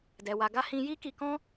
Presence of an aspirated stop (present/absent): absent